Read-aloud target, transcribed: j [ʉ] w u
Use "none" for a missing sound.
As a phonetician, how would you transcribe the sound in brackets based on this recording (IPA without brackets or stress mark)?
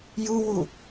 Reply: u